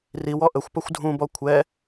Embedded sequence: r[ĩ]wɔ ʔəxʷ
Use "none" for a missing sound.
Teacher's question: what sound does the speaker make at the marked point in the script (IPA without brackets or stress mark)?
i